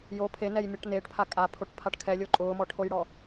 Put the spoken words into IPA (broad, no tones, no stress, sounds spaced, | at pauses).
j o pʰ e n ɛ j mʲ ɔ ʈ n eː ʈ pʰ a kʼ a pʰ o ʈ pʰ a ʈ kʰ ɛ lʲ o ǃʼ ʊː m ɔ ʈʰ o j ɽ ɔ